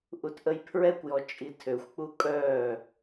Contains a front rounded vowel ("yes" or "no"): yes